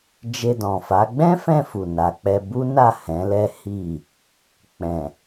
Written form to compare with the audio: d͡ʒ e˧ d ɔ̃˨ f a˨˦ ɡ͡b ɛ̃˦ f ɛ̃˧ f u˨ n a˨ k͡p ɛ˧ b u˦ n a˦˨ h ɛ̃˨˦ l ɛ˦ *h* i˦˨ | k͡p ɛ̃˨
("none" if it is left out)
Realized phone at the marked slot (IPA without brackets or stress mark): h